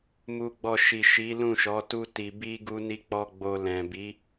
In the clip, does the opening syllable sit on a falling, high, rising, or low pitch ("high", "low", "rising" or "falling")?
low